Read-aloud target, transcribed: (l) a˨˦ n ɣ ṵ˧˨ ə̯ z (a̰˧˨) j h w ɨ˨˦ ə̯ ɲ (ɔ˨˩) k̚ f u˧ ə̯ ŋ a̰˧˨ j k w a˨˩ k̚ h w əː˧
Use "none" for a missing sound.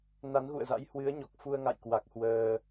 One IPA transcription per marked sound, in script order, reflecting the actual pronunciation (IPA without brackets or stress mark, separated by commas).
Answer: n, a̰˧˥, ɔ˨˩